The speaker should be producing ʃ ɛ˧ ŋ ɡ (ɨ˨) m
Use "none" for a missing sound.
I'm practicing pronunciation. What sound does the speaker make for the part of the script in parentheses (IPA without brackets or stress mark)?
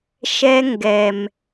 ɛ˨